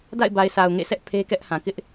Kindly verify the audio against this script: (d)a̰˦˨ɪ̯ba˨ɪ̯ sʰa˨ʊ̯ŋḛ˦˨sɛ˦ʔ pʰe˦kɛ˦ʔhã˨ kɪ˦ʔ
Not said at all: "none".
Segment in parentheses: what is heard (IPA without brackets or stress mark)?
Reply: d